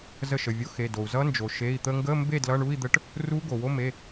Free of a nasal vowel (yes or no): yes